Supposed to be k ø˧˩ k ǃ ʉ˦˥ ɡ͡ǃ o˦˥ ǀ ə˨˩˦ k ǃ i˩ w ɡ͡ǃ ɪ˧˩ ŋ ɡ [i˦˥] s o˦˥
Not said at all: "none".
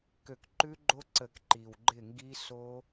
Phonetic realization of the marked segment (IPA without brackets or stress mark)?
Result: i˦˥